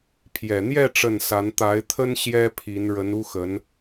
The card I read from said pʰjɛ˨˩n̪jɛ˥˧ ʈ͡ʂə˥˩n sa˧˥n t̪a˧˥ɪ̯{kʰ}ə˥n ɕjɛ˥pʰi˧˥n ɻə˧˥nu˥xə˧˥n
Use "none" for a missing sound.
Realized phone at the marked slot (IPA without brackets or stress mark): t̪ʰ